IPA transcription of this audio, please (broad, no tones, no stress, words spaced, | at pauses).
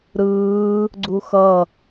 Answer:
ɾɯː | ɡ͡ǀuxʌ